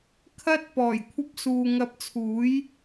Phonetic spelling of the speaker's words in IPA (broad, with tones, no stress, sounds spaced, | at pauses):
kʰ ɐ˥ t̚ p ɔː˨˩ j kʷʰ ɐ˧ p̚ s uː˨ ŋ ɐ˧ p̚ t͡sʰ uː˨˥ j